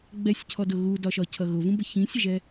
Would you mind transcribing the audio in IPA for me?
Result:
ɡ͡b ɛ sʲ cʰ ɔ d ʊ ɣ u d ɒ ʃ ɒ cʰ ʌ ɣ ʊ v ũ b ə ç ĩ sʲ ə ʒ ɛ

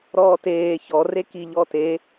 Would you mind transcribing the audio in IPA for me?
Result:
ɾ ɔː t eː ç ɔ r e k i ʎ ɔ t e

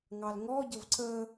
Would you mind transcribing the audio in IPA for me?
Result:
ŋ ɑ l ŋ ɔ ɟ ə v ǀ ə

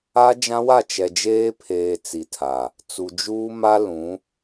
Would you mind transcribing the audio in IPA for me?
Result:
a˦ d͡ʒ ã˦ w a˦˨ t͡ʃ ɛ˨ d͡ʒ eː˦ pʰ eː˨ t͡s i˨ tʰ a˨ | t͡s u˨ d͡ʒ uː˦ m a˦ l ũ˨˦

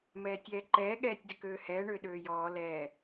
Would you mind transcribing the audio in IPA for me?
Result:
m ɛː tʲ ɛː ǃ ɛː ɠ ɛː tʲ d ʏ k øː h ɛː ɳ ʏː ɗ øː j ɔː l ɛː

